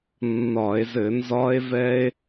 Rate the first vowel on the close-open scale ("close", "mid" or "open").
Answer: open